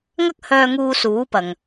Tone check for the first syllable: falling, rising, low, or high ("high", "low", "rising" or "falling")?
high